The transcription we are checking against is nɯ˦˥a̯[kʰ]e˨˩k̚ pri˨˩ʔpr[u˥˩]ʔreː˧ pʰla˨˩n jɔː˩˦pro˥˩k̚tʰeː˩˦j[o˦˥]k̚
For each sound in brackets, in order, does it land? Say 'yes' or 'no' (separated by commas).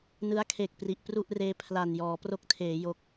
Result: yes, yes, yes